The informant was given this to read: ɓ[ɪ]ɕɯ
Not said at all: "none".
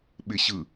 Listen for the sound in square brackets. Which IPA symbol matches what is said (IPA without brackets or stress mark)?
ɪ